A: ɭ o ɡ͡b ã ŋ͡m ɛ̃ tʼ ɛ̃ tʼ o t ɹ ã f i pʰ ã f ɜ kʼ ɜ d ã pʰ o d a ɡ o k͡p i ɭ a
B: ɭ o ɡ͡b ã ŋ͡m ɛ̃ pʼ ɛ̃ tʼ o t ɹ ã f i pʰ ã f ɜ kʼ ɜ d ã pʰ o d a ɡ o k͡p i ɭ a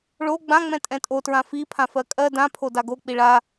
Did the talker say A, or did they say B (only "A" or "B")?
A